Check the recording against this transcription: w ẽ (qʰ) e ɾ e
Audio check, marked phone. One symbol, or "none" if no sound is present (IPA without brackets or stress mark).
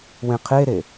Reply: qʰ